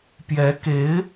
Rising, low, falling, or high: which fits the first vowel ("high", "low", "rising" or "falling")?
rising